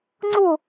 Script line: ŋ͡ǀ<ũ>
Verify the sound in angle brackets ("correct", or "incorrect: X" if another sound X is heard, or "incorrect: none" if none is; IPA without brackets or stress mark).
incorrect: u